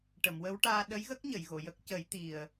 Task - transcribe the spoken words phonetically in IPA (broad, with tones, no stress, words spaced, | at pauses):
ʈə˨˩˨mwə˧˥wʈaː˧ ɗə˧˥jɣə˦˥k̚ ɲə˨˩˨jɣo˨˩˨jə˦˥k̚ cə˨˩˦jt̪i˨˩ə̯